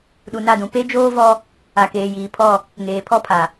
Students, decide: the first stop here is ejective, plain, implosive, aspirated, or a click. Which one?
implosive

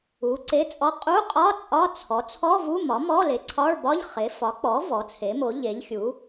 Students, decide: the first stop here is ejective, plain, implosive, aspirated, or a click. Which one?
click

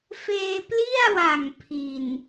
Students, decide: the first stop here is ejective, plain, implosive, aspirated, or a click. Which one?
plain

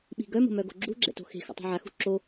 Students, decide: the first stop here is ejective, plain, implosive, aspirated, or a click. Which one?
implosive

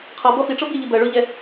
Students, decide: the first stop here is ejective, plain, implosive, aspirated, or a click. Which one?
aspirated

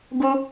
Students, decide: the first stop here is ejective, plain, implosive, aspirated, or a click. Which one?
plain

